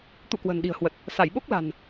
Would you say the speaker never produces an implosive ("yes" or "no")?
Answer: no